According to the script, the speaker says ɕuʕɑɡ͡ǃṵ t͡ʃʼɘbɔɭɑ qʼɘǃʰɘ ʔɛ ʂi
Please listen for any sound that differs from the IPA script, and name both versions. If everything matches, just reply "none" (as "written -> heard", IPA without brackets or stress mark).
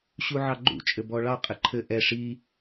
none